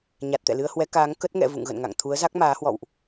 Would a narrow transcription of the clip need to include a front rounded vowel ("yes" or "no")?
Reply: no